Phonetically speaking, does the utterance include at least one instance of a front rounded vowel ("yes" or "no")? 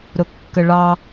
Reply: no